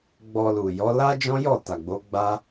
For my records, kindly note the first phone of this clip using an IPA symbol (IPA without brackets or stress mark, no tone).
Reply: ɡ͡b